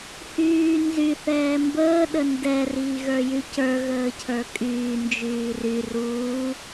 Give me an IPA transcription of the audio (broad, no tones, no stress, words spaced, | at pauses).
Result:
hyː nzy θɛːmbəː ɗəndɛ riːɣə˞jycə˞ ɣəːcʰə˞kʼyː nd͡ʒyːry ruː